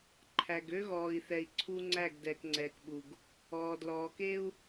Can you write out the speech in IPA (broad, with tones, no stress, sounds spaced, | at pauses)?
ǃʰ æ˨ ɡ ø˦ ɣ ɔː˨ i̯ θ ɛ˨ i̯ ǀʰ u˦ ŋ͡ǀ æ˦˨ ɡ d ɛː˨ k ŋ͡ǀ ɛː˨ k ɓ u˨ ɡ | ɔː˨ d l ɔː˨ k e˦ u̯